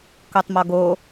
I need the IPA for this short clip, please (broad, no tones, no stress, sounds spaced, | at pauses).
k o tˤ m ɔ ɡ o